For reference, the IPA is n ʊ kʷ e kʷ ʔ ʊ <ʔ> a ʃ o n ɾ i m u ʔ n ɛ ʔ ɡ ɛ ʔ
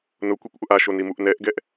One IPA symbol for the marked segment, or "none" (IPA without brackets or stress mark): ʔ